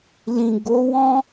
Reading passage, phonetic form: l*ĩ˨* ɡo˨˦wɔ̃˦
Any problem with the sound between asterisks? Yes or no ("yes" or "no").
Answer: no